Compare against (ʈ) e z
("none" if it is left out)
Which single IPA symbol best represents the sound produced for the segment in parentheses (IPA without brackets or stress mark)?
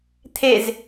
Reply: t̪ʰ